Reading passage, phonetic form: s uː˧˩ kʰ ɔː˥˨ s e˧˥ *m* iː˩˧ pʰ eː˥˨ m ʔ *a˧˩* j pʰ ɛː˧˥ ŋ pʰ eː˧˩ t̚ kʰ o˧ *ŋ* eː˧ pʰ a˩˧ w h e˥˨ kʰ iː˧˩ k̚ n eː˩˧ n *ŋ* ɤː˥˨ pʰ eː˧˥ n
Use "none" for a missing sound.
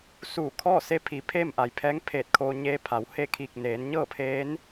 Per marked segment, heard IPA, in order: pʰ, a˩, ɲ, ɲ

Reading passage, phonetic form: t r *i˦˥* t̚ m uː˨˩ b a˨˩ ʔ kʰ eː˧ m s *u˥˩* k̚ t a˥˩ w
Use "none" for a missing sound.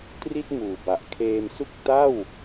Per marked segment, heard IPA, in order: i˥˩, u˥˩

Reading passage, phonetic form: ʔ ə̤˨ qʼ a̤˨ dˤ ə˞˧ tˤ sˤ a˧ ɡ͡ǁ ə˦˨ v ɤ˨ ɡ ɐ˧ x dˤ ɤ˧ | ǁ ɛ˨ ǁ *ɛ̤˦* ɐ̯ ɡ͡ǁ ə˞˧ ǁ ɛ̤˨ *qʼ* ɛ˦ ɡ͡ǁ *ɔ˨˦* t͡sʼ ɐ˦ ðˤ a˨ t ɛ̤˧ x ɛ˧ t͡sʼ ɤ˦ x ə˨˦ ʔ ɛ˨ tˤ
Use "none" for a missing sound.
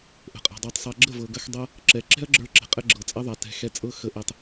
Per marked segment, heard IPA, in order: ɛ̤˦, qʼ, ɤ˨˦

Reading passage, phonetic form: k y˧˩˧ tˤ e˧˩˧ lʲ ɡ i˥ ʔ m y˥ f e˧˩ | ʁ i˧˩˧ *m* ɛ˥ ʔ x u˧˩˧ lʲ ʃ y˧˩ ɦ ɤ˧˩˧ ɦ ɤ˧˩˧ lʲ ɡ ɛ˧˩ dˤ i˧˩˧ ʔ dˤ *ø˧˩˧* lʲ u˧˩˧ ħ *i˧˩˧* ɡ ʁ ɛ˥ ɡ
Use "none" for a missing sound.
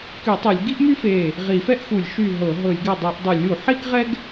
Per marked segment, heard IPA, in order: f, u˧˩˧, i˥

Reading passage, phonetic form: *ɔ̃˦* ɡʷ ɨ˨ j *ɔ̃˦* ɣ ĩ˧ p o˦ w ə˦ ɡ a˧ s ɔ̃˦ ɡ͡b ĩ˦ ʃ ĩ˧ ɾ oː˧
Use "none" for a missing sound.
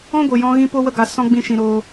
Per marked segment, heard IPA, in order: ɔ̃˦, ɔ̃˧

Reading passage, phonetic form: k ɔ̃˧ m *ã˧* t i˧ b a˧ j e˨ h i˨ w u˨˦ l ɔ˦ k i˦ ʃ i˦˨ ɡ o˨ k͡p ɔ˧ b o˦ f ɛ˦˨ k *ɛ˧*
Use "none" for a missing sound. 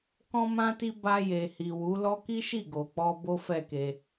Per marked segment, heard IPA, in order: ã˧, e˧

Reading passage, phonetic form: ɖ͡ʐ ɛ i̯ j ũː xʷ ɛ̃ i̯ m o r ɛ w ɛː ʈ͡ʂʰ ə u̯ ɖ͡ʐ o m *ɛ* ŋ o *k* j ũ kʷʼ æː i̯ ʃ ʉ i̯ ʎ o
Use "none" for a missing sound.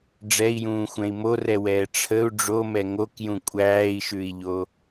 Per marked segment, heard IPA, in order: ɛ, k

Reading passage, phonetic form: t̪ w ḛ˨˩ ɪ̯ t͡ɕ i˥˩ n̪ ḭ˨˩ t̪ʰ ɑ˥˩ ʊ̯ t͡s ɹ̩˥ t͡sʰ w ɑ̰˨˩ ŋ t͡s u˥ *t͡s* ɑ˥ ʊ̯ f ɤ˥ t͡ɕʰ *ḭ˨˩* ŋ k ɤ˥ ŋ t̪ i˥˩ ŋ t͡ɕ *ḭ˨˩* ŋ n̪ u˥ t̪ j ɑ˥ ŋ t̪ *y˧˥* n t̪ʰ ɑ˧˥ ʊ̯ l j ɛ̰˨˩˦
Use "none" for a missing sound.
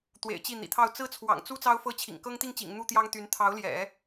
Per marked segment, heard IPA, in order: t͡s, ḭ˨˩, ḭ˨˩, y˧˥

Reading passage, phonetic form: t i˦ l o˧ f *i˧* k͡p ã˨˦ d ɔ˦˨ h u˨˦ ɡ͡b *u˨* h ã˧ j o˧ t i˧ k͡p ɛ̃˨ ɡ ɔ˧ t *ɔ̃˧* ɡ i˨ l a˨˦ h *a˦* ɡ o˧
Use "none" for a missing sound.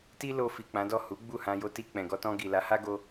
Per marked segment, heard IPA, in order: i˨, u˦˨, ɔ̃˧, a˦

